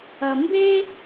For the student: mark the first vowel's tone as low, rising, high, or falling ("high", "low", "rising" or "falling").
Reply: low